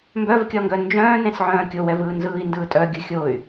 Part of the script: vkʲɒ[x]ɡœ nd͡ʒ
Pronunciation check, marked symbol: incorrect: ŋ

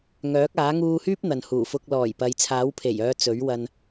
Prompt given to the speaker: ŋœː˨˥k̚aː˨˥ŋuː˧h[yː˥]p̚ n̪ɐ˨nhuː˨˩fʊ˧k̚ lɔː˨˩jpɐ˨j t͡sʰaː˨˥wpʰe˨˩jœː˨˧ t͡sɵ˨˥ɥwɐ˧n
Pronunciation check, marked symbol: correct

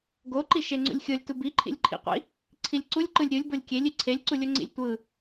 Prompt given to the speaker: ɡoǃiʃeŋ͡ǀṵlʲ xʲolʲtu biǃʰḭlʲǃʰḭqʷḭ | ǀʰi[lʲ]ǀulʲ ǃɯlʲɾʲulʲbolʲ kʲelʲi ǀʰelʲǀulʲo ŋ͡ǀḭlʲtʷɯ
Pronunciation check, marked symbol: correct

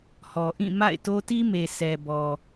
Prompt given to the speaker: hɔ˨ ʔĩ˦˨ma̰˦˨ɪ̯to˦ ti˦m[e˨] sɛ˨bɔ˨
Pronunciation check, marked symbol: correct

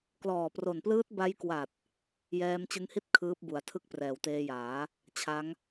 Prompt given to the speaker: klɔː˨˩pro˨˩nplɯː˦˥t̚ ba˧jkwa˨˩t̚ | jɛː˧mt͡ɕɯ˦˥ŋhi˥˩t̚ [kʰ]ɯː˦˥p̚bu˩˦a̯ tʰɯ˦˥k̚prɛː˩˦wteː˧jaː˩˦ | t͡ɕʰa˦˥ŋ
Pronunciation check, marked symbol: correct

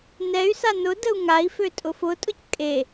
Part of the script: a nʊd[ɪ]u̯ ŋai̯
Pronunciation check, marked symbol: incorrect: ə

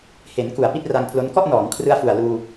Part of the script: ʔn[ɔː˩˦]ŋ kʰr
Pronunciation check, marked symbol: correct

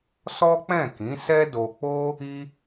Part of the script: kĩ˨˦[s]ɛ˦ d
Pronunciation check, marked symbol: correct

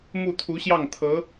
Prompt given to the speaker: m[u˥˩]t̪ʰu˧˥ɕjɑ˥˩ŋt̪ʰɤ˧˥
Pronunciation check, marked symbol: correct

